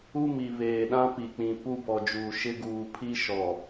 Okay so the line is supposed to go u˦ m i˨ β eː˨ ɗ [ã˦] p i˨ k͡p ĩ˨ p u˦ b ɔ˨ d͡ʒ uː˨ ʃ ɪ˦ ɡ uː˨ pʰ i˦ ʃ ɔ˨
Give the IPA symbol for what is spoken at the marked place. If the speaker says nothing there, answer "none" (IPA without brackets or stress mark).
ã˦